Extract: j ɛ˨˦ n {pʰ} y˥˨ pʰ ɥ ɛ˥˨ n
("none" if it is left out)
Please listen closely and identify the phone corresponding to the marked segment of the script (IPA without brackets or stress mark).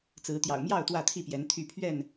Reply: t̪ʰ